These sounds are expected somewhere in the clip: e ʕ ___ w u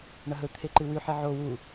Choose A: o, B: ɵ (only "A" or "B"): A